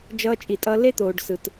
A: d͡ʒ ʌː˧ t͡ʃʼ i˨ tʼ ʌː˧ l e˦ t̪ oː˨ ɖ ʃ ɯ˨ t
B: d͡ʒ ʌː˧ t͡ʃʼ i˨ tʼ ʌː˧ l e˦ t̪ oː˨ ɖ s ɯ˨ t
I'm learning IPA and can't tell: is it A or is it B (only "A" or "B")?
B